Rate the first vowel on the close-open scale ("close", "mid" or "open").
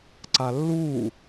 open